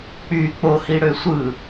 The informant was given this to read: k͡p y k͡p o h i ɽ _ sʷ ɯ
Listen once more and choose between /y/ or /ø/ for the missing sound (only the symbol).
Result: ø